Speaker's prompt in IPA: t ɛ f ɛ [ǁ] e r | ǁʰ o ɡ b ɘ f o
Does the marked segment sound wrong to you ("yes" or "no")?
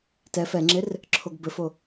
yes